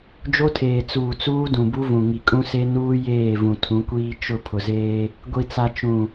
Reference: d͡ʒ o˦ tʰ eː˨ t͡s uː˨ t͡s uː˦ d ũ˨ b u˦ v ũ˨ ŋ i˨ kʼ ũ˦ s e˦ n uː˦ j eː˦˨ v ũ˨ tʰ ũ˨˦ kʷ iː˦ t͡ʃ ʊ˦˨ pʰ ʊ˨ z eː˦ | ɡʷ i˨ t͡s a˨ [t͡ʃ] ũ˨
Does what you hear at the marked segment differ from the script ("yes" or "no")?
no